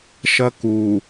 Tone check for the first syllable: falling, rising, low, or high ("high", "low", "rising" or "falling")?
high